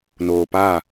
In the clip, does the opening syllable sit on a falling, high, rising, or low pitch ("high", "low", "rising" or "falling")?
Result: low